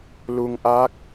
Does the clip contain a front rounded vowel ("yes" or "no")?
no